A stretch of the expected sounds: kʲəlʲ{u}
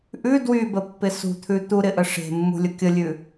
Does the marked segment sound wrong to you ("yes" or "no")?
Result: yes